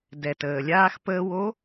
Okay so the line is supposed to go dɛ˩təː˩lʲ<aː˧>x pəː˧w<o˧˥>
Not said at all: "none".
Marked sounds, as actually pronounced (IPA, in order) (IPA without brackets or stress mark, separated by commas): aː˧, o˧˥